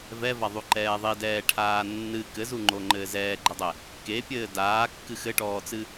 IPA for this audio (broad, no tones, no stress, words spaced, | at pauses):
vɛvaðˤuǃɛː ðˤidɛːʈʰaː nːɨ kɘzuŋ͡ǃoŋ͡ǃɘː zɛːɡ͡ǃɘdˤɛ | kepʲɘː daːkːɨ xɘʈɔːt͡sɨ